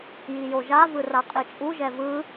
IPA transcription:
j i j o ʒ a v ɯ r a qʼ i t͡ʃʼ u ʒ ɛ v ɯ

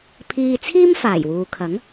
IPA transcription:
pʰ iː˧ t͡sʰ iː˥ m f aː˨˩ j w uː˨ kʰ ɐ˨˥ ŋ

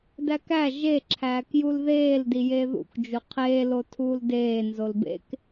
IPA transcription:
d æ k æ ʒ e ǁʰ æː k j u l ð eː l d i j e ð ṵ k d͡ʒ u qʰ eː l o tʰ uː l d eː n z o l b ḛ k

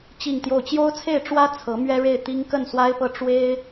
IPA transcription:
t͡ɕ i˥˧ ŋ t̪ j o˥˩ ʊ̯ t͡ɕ j o˥ ʊ̯ t͡sʰ e˥˩ ɪ̯ ʈ͡ʂ w ä˥ t͡sʰ ɤ˧˥ m ɥ ɛ˥ ɻ e˥˩ ɪ̯ t̪ i˥ ŋ k ə˥˩ n s w a˥ ɪ̯ p ɤ˥˩ ʈ͡ʂ w e˥ ɪ̯

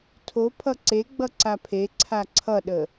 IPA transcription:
tʰ o pʰ ʌ ǀ e ɡ͡b ʌ ǀ a pʰ e ǀʰ a ǀʰ ʌ ɗ ə

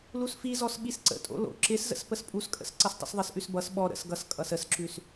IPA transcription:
l u s f i z ɔ s ɓ i s ǀ ə̰ tʼ o̰ l o̰ ǁ ɪ s z ə̰ s p ə s pʼ u s kʼ ə̰ s ǀ ʌ s tˤ ə̰ s ðˤ ɪ s ʔ ʉ s b ʌ s ɓ ɔ ɾ ə̰ s ɡ ʌ s kʼ ʌ s ə s ǁ ʉ s

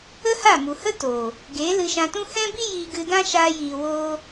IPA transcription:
ə˦ h a˦˨ m u˨ h ə˦ t o˨ | ɡ eː˨˦ l ɨ˧ ʃ ã˧ t ũ˦ h ɛ̃˦ b i˦ j iː˧ ɡ ɨ˧ d ã˦ ʃ aː˧ j iː˨ w oː˧

